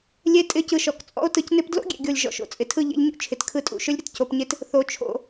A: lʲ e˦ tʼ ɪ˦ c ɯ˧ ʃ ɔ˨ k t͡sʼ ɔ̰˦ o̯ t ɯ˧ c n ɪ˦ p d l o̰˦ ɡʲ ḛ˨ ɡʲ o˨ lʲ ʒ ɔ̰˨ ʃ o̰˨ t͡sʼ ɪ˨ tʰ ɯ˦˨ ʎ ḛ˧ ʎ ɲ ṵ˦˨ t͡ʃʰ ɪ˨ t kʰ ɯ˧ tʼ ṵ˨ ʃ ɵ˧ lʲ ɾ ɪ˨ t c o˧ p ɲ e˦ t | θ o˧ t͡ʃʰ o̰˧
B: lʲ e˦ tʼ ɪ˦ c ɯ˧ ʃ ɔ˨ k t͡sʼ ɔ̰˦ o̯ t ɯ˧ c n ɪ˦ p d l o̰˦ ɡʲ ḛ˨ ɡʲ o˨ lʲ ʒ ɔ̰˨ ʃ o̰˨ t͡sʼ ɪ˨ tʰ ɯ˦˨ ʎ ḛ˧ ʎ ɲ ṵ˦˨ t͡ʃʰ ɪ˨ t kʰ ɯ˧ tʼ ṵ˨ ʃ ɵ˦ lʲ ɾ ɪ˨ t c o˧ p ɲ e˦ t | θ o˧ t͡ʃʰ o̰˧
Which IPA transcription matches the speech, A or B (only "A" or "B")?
B